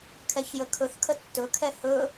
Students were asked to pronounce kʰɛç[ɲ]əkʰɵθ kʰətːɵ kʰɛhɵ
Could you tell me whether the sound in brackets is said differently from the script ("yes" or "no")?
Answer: yes